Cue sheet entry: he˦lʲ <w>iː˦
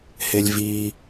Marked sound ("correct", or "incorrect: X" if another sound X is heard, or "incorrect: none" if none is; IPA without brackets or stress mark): incorrect: v